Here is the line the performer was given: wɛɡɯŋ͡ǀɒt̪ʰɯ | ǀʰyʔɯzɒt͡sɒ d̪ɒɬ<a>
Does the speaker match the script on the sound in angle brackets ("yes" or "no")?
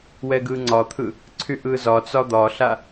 yes